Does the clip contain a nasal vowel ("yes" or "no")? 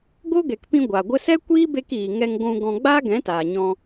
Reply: yes